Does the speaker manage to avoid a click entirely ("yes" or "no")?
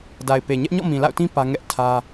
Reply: yes